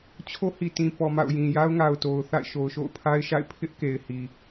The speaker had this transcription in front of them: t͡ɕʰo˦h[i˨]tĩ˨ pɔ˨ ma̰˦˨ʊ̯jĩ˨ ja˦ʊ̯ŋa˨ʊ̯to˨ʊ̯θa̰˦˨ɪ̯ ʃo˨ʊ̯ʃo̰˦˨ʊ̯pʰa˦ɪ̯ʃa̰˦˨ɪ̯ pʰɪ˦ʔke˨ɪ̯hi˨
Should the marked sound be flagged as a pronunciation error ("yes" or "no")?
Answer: no